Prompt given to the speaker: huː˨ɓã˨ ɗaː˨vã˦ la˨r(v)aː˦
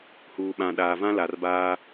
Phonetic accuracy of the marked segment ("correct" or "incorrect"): incorrect